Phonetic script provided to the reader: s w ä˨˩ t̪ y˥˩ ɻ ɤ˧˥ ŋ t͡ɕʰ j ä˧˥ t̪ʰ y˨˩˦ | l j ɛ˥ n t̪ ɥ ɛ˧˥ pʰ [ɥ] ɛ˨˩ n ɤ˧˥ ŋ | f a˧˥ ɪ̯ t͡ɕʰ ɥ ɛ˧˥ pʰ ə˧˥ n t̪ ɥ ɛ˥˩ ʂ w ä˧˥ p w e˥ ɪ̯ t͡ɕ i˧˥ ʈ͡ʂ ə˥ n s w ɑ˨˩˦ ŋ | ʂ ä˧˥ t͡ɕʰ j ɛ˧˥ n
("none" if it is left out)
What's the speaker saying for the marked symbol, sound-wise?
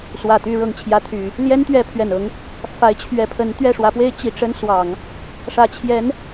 ɥ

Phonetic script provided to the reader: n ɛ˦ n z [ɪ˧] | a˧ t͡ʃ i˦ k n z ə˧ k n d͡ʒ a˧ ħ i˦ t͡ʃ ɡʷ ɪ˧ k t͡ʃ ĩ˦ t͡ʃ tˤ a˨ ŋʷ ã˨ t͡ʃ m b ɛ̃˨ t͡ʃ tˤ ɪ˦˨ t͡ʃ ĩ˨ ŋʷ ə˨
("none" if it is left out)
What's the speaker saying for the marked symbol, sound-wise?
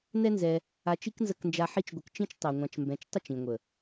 ɛ˧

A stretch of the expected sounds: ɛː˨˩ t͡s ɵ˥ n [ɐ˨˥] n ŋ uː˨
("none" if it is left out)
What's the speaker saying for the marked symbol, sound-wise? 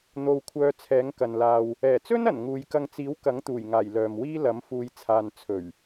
ɐ˨˩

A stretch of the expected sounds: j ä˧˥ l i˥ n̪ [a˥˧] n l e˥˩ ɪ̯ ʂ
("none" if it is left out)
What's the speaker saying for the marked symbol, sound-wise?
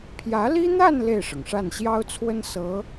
a˥˧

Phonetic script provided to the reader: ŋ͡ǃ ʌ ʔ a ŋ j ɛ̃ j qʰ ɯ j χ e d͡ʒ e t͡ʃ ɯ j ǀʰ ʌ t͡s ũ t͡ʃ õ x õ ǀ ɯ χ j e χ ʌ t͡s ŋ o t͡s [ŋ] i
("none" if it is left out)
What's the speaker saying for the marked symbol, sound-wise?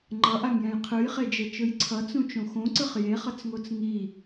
ŋ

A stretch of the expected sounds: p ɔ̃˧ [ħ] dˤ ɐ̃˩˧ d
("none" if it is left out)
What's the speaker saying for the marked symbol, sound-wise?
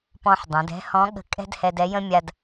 ħ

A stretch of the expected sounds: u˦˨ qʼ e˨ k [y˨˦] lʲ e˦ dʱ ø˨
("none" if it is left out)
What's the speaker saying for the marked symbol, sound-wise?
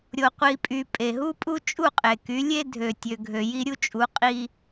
y˨˦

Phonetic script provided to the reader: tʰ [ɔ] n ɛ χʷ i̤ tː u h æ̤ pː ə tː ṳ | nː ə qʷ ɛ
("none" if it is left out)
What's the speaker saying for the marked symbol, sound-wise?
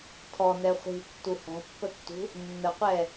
ɔ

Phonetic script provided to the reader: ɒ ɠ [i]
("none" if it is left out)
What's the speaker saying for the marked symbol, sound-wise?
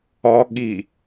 i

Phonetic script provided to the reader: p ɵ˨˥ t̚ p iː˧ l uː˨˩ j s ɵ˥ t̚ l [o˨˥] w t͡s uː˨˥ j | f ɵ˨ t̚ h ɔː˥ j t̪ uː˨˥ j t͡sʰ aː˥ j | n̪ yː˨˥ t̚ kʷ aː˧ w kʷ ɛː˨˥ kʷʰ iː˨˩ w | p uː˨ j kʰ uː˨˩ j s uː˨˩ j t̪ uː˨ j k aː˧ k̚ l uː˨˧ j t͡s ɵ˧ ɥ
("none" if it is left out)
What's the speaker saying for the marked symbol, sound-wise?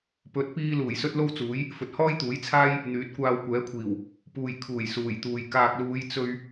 o˥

